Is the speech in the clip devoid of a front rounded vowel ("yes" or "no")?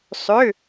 no